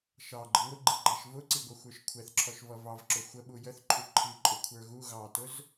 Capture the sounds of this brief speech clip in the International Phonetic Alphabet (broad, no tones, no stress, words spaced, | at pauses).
ʃɑ ɡ͡ǃəŋʷɪɡ͡ǃiɡ͡ǃæʃ vʊǀiɡʷʌxʷə˞ʃ kʷʰɛθǁʰɔʃvʌ vɑvǁʊ xʷəɓu jəθǃʰu ǃʰiǃʼʊkʷʰə˞ ɣu ɣɑtʊz